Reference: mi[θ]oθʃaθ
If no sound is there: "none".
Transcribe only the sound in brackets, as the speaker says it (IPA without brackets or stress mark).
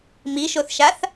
ʃ